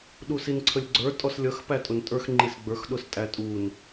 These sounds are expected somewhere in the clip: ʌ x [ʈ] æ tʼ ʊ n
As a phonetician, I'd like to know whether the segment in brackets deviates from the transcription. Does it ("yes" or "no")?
yes